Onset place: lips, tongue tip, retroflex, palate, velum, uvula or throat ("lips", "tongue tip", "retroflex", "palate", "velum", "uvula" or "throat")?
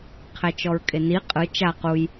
uvula